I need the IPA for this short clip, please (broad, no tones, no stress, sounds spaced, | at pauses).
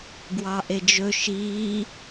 ɡ w ɑ ʔ e d͡ʒ ɵ ʃ iː